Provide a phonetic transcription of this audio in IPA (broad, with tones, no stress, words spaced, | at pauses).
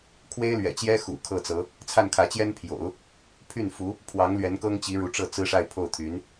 kʰwe˥ɪ̯lɥɛ̰˨˩t͡ɕjɛ˥ xṵ˨˩kʰɤ˥˩t͡sɤ˧˥ | t͡sʰa˥˩nkʰä˧˥t͡ɕjɛ˥npʰjo̰˨˩˦ʊ̯ | pʰy˥˩nfu˧˥ | pʰwɑ˧˥ŋlɥɛ˧˥n kɤ˥ŋt͡ɕi˧˥ ɻu˧˥ʈ͡ʂɤ˥˩ t͡sɹ̩˥ʂa˥˧ɪ̯ pʰo˥˩ʊ̯t̪ʰy˧˥n